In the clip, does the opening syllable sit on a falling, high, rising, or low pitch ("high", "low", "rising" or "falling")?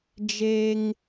high